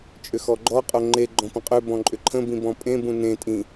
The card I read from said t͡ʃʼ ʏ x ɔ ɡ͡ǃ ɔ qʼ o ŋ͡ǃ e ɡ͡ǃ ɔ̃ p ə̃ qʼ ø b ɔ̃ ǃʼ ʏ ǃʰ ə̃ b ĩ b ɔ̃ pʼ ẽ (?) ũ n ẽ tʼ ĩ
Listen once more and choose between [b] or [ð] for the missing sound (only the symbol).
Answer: b